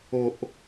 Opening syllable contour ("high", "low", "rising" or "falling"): low